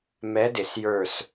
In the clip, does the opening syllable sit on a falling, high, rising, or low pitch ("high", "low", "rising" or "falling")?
rising